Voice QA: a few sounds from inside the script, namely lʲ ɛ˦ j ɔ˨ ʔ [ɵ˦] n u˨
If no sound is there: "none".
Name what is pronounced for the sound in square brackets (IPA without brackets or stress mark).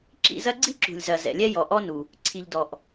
ɔ˦